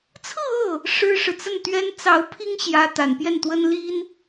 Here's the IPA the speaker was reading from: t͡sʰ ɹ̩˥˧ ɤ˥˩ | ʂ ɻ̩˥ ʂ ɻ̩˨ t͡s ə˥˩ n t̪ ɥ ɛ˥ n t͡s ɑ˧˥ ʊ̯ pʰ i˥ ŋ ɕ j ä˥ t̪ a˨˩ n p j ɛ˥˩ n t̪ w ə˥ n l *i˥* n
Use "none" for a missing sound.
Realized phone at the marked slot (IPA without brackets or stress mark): i˥